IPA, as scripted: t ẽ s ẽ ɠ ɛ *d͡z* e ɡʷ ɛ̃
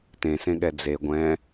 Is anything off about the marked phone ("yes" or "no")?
no